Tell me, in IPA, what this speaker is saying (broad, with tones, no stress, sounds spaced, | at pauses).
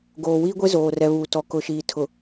ɡ oː˨ w iː˦ ɡʷ e˦ z oː˨ r ɛ˨ β uː˨ t ɔ˨ k ʊ˨ ʃ iː˨ tʰ ʊ˨